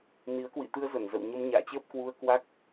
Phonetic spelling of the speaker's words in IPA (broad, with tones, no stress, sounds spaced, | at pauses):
n i˨˦ ə̯ k w ḭ˧˨ t̪ ɨ˧ ə̯ z ə˧˩ n z ə̰˧˨ w ɲ ə˧ m ɲ a̰ː˧˨ t͡ɕ əː˦˥ p̚ k w u˧ ə̯ k w a˦˥ k̚